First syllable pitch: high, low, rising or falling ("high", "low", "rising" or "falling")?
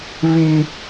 high